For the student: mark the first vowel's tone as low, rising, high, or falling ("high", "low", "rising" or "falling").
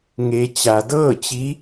low